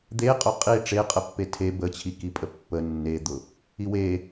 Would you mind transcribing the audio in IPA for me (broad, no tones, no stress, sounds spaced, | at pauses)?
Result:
d̪ e qʼ ʊ qʼ i ʈ͡ʂ e qʼ ə pː e tʰ e b ə t͡ɕʰ i k i pʼ ə pː ə nː e d̪ ʊ | i w e